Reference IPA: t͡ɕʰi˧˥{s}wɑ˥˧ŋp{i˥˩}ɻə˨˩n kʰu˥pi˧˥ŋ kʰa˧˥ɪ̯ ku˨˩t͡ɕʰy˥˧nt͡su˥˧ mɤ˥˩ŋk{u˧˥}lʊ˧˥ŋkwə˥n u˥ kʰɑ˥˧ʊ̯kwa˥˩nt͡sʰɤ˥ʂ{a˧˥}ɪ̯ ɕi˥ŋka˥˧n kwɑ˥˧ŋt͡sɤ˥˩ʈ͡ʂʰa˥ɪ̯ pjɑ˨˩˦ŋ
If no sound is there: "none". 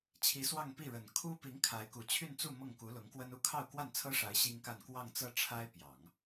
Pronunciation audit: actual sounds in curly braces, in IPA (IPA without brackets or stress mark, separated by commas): s, i˥˩, u˧˥, a˧˥